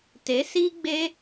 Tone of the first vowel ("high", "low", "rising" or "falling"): rising